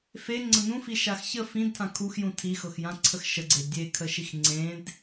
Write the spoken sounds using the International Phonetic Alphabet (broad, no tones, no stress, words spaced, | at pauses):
fe ŋ͡ǀənũfi ʃaxçə fĩdtʰã kʰuxjũ tʰixɤxjãǀʰəx ʃəɡ͡ǀe dʲekʰəʃix ŋ͡ǀẽd